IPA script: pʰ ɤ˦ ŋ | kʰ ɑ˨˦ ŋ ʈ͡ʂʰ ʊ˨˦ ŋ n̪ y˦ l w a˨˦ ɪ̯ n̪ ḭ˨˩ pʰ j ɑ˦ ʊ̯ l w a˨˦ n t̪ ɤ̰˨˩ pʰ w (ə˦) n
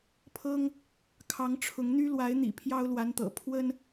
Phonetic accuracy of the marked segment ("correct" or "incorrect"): correct